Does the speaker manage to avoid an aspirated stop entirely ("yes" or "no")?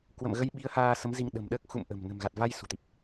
yes